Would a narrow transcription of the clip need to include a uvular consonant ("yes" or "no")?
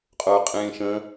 yes